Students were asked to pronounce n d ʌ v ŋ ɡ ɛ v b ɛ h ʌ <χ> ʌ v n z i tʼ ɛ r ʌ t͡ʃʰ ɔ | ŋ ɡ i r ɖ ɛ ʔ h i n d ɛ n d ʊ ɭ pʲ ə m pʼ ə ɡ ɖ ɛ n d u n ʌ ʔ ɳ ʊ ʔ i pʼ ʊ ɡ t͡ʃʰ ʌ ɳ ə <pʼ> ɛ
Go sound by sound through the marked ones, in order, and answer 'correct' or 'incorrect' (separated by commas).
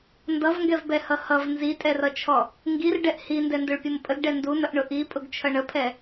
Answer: incorrect, incorrect